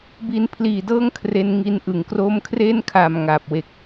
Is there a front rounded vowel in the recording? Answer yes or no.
no